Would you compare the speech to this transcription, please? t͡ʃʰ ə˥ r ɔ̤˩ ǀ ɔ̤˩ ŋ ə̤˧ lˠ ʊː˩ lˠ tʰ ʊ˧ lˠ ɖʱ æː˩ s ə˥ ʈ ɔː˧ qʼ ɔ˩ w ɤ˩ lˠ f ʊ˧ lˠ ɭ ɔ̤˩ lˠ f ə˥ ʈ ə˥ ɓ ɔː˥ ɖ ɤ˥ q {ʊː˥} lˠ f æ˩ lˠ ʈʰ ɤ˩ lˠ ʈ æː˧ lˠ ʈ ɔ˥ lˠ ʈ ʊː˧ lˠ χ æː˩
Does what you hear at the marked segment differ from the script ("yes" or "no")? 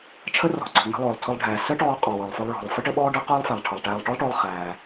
no